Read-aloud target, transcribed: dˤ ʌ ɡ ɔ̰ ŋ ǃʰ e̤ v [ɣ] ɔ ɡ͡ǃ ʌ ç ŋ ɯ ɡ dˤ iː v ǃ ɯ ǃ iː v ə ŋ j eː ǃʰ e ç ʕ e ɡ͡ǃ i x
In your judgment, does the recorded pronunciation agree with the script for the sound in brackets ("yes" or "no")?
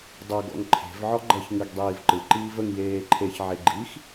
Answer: no